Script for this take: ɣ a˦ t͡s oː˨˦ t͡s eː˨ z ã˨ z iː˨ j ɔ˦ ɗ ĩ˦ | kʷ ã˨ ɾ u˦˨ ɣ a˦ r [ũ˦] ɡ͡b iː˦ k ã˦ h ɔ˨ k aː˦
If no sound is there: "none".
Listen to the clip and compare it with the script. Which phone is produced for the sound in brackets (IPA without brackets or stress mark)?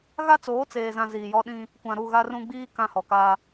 ũ˦